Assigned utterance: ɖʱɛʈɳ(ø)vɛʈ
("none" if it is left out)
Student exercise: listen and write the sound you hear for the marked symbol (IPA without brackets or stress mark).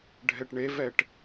e